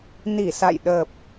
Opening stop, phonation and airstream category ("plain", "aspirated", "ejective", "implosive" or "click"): implosive